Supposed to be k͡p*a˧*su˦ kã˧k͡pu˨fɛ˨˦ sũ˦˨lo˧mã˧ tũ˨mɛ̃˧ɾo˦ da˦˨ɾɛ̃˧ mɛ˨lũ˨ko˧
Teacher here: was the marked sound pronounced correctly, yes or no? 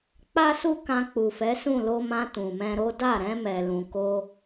no